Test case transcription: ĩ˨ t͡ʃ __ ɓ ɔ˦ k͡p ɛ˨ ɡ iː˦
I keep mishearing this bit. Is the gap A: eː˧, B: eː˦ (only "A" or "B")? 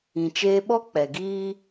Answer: A